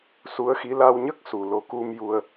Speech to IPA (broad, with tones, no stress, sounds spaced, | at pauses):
s u˧˥ ə̯ x i˧˥ l a˧ w ɲ ə˦˥ k̚ s u˨˩ l o˧˥ k u˧ m j u˧ ə̯